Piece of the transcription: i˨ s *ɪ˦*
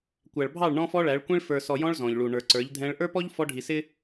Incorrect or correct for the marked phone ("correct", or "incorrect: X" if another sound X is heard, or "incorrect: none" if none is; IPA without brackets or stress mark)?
correct